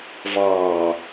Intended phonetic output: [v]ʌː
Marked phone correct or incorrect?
correct